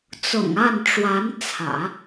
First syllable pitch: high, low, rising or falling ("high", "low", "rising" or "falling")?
low